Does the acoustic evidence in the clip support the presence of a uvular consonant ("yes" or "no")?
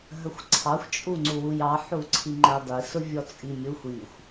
no